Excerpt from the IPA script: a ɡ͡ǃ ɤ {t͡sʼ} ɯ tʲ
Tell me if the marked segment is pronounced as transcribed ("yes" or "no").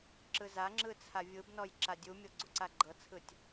no